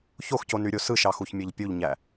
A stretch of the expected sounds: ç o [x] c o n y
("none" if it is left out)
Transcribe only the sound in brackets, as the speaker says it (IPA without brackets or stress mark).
x